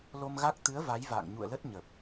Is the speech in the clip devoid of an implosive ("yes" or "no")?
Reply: yes